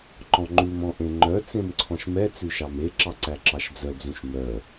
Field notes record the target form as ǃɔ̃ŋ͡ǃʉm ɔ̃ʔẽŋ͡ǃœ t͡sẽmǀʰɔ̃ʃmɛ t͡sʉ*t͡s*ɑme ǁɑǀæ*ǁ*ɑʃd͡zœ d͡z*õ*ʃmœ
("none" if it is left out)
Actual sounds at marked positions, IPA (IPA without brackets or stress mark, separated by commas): ʃ, ǁ, ũ